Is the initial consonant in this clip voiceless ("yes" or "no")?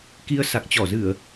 yes